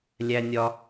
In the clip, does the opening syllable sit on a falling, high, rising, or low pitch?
high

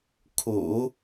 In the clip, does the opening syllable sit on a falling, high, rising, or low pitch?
low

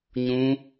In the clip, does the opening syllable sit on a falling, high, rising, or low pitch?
high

